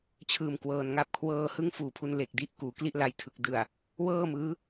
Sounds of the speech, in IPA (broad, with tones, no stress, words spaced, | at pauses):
t͡ɕʰɯː˨˩m kwɤː˧nŋa˥˩p̚ kʰwɤː˧hɯ˦˥ŋ fuː˨˩pʰu˧n le˨˩k̚di˦˥ʔ kuː˩˦kli˥˩ʔla˧jtʰɯ˨˩k̚ dɯ˨˩a̯ | wɤː˥˩mɯː˦˥